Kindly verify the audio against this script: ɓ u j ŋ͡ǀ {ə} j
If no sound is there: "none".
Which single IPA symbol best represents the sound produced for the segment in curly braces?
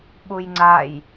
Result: a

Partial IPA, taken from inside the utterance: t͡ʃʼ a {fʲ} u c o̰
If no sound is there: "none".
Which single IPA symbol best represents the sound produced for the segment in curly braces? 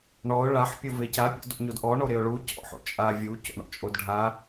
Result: vʲ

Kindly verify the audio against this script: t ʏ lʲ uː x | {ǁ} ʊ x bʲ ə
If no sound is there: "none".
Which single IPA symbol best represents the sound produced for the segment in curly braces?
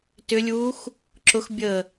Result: ǁ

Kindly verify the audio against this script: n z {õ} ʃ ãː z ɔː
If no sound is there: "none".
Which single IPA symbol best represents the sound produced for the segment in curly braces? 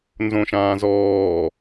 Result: õ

